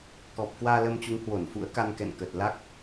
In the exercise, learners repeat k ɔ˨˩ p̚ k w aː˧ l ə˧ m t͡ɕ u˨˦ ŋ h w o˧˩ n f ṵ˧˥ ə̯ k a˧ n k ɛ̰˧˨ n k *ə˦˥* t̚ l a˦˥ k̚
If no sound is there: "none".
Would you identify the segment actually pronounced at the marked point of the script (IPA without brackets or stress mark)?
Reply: ə˨˩